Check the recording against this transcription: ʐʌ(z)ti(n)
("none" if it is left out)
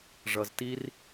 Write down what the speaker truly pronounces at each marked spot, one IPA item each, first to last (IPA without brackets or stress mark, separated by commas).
z, r